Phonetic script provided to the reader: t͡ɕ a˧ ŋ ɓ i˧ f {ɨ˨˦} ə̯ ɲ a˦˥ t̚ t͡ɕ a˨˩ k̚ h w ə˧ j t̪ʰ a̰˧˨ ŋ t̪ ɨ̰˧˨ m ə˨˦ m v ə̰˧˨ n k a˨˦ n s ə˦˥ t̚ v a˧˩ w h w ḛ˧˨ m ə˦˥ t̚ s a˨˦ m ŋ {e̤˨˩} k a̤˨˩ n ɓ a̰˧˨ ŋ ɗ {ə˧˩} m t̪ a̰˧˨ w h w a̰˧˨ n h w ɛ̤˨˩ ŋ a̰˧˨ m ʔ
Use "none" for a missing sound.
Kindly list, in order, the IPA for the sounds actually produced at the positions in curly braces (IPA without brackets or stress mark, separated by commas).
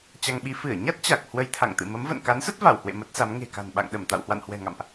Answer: ɨ˧˩, e̤˨˩, ə˧˩